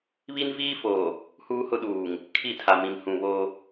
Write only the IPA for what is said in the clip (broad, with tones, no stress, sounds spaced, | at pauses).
β i˦ n v iː˦ f oː˨ | h uː˦ h ʊ˦ ɗ uː˨ ŋ | kʰ i˦˨ tʰ a˨ m ĩ˨ m h ũ˨ β o˦